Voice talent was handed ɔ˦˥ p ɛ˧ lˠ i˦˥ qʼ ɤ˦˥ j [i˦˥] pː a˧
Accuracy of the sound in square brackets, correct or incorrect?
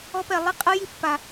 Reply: correct